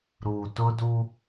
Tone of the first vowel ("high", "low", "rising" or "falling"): low